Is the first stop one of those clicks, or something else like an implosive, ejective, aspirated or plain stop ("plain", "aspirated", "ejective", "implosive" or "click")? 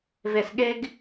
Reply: implosive